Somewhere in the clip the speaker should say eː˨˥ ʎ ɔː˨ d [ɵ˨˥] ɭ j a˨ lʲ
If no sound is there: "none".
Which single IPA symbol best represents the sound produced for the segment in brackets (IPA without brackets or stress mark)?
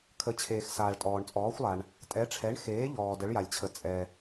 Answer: ə˨˥